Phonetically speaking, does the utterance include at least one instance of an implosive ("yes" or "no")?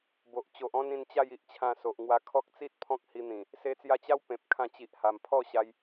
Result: no